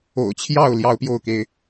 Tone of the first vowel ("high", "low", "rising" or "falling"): low